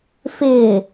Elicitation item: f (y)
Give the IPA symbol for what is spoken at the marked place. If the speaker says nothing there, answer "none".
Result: ɪ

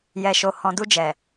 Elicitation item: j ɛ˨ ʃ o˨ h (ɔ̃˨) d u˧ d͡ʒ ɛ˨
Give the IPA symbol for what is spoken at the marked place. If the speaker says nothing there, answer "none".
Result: ɔ̃˨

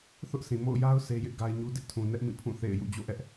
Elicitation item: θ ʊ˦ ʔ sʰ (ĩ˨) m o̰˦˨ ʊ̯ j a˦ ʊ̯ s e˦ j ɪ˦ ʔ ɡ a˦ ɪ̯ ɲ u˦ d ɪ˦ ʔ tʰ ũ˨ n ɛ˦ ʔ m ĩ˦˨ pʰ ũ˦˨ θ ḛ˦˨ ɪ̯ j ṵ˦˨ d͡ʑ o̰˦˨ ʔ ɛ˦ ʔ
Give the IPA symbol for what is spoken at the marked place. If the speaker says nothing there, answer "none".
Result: ĩ˨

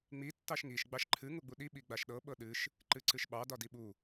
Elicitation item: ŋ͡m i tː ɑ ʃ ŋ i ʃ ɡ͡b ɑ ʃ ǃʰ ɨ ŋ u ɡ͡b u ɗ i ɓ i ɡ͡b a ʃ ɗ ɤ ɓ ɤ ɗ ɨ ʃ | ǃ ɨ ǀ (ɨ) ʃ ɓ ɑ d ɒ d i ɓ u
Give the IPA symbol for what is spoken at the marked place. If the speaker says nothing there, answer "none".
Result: ɨ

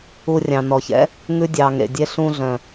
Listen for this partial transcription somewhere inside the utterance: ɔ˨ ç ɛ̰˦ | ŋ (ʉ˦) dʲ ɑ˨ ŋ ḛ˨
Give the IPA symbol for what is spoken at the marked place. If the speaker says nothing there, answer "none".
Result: ʉ˦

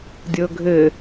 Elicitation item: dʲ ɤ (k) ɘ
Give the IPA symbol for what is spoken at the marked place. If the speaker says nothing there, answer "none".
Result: ɡʱ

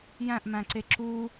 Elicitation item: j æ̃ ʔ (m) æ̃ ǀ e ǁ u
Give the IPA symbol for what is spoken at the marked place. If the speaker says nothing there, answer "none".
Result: m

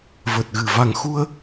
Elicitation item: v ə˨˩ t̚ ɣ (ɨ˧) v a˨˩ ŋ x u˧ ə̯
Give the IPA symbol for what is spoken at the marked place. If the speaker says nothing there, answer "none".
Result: ɨ˨˩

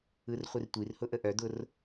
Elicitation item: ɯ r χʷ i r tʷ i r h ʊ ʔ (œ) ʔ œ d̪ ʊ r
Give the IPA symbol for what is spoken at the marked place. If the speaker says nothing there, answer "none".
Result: ə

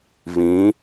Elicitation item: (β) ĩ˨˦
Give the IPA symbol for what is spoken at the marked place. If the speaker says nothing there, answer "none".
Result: β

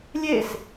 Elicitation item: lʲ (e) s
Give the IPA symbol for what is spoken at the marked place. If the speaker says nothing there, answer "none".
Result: e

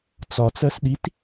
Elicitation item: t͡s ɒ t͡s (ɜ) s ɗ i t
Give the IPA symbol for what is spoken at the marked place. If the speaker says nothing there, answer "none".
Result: ɜ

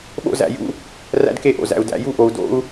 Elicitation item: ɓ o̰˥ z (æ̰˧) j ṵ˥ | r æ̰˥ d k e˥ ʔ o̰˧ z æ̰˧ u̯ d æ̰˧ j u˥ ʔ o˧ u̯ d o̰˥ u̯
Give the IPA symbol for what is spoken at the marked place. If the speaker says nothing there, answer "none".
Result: æ̰˧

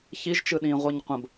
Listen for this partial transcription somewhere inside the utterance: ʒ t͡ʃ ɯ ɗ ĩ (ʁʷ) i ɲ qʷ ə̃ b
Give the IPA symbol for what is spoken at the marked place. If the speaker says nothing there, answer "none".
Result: ʁʷ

